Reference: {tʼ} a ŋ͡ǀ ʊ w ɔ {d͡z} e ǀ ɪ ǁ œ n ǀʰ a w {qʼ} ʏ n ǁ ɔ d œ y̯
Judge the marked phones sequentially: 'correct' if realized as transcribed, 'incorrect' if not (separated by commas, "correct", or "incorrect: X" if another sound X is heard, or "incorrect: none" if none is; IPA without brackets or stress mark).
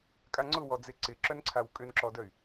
incorrect: kʼ, correct, incorrect: kʼ